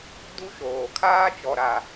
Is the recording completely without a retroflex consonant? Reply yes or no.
yes